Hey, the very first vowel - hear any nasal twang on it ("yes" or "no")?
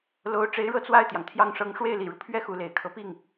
no